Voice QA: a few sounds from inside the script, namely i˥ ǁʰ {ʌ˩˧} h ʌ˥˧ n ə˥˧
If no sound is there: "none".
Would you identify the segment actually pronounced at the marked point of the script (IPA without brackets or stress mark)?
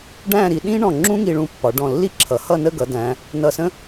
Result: ʌ˩˧